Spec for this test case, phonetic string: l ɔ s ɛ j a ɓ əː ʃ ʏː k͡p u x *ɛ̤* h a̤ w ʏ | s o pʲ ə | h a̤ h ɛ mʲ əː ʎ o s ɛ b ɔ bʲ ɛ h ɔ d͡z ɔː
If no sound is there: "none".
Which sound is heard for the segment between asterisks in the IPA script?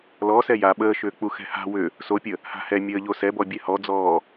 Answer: ɛ̤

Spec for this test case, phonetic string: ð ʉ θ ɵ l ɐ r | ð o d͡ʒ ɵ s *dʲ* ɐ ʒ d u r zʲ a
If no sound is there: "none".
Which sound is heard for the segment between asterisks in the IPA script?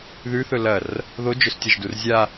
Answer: tʲ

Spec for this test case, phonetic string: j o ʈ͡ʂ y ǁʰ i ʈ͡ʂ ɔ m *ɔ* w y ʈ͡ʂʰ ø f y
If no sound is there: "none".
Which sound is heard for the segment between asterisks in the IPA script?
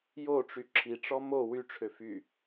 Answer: o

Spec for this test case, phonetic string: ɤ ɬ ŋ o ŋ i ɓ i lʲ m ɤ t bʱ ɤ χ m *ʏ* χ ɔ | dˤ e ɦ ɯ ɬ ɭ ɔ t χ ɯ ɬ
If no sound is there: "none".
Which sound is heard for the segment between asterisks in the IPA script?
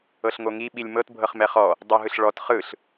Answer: ɛ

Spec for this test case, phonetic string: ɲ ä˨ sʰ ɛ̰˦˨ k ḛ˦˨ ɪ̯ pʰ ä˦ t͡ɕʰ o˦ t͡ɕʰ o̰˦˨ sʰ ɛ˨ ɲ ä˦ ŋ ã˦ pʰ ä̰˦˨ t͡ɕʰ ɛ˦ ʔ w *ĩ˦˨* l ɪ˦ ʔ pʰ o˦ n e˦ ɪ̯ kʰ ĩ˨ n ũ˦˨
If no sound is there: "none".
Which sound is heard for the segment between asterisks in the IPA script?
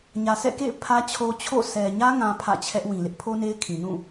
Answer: ĩ˨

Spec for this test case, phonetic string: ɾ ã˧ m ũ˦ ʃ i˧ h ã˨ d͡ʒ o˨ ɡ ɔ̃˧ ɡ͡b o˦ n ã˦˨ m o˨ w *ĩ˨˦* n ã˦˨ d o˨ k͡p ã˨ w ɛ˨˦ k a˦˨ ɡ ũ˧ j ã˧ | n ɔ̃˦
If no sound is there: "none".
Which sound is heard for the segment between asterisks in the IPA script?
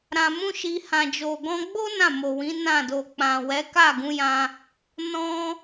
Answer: ĩ˨˦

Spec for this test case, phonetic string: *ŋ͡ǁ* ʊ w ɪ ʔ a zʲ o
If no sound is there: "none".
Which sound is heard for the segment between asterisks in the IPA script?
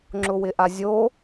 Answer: ŋ͡ǁ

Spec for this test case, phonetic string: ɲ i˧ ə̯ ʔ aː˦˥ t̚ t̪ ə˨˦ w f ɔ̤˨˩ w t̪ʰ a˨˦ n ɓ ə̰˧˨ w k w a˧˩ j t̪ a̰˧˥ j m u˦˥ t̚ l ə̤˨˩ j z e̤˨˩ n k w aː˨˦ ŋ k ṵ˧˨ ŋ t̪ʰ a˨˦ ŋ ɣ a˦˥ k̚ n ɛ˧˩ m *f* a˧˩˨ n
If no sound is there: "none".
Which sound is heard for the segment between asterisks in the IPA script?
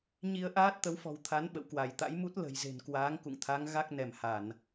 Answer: h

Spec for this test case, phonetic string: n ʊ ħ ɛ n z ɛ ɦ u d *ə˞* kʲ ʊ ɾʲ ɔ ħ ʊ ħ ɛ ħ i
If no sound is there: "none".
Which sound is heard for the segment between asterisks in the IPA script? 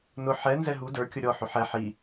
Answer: ə˞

